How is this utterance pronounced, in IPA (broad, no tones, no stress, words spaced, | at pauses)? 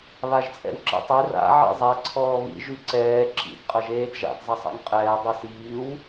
βaʒt͡sʼɛ̰wǁɛ̰tˤe ra̰ ʕḭzˤɛ ǀʰɔːβḭ ʒyǀɛː ǁḭd qʼɐʒeːdʒa̰d zˤɐsˤa̰ŋqʼɛː dˤisiːw